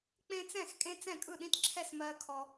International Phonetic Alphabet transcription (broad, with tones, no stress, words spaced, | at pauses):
k͡pẽ˦t͡sɛ̃˥˩xkʼẽ˦ t͡sɛ̃˥˩kʼɯ˥˩ɗĩ˦tǁʰɛ˥˩s mɜ˦ kʰɔ˦